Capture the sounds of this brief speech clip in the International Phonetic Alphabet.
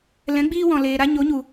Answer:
lɛ̃˨˦ɡ͡biː˧wɔ̃˨ leː˨ɾa˧ ɲo˨˦ɲu˨

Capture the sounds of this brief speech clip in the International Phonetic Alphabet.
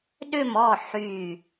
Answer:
ɗʏ˦˨mɔ˦˨ ħy˦˨

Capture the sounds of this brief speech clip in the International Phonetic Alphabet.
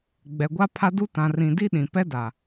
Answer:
ɡ͡bɛ˨ɡʷa˦pʰa˦du˦ tã˨rĩ˨di˦ ɗĩ˨pɛ˦da˨

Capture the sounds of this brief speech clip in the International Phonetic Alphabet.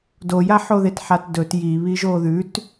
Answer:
dojaħoðet ħatdɵt jiβi ʒoðʉt

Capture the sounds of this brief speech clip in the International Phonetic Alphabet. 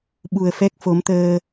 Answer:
ɓu˨˩ə̯fɛ˦˥k̚fo˨˦mt̪əː˧

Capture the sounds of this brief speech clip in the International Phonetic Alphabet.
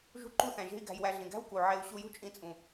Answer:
ʒṳ˦ǃu˦θæ̃˨ʒe̤˦i̯ ɡæ̤˧jwæ˧ɮĩ˨ ɡæ̤˦w ku˨ʕe˧u̯ ɕu˧jṳ˦t͡ʃʼĩ˧t͡sʼũ˨

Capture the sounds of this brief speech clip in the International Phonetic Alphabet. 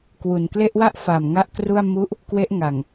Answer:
kwu˨˩nkle˥˩ʔ wa˥˩ʔfa˨˩m ŋa˥˩ʔkru˥˩a̯ mu˦˥ʔ | kwe˦˥ʔŋa˨˩ŋ

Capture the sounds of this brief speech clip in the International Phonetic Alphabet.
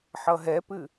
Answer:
ħʌɦɛpɨ

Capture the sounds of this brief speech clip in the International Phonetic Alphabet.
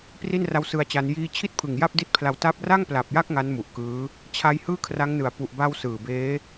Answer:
pri˥˩nra˦˥wsɯ˧a̯t͡ɕa˧n jiː˧t͡ɕʰi˥˩t̚pʰɯ˨˩ŋ ja˥˩p̚di˦˥t̚pʰla˧w ta˦˥p̚ ra˥˩ŋpla˨˩p̚ja˥˩k̚ ŋa˦˥nmu˨˩ʔkɯː˦˥ | t͡ɕʰa˦˥jhɯː˥˩kʰra˦˥ŋnɯ˨˩a̯ pu˨˩ʔba˧w sɯː˨˩beː˦˥

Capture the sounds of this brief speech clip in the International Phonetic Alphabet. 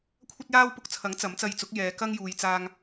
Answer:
kʷʰɐ˥t̚jaː˥wpʊ˧k̚t͡sʰɐ˨˥ŋ t͡sɐ˨˥mt͡sɐ˧jt͡sʊ˨˥k̚jɛː˨˧ kɐ˥ŋjuː˨jt͡saː˧ŋ

